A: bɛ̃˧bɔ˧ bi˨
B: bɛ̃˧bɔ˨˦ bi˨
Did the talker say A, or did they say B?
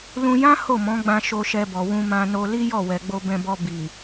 A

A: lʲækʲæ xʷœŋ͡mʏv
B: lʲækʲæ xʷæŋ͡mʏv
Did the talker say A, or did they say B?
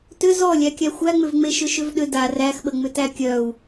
B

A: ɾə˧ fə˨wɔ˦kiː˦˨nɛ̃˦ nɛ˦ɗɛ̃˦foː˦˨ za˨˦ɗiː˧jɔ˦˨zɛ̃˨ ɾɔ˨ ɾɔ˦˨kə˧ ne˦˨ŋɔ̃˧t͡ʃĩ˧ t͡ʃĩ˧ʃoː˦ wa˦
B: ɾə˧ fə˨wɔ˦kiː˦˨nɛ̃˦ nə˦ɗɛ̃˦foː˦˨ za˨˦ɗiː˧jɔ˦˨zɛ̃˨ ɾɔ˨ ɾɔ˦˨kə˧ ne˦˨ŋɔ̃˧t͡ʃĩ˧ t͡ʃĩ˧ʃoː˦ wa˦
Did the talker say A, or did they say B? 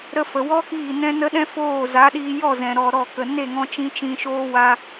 B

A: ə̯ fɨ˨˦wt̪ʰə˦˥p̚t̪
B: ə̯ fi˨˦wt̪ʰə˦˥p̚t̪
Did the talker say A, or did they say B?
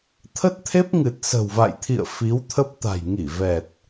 B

